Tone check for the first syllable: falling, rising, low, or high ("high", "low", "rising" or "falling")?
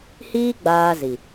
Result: high